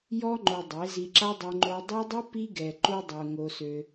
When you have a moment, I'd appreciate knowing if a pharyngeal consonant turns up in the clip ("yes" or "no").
no